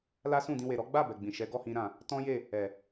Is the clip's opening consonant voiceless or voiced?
voiced